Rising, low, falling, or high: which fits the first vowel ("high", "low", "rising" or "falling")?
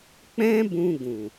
high